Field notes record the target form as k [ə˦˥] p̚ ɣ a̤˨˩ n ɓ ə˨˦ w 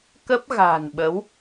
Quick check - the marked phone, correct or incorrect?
correct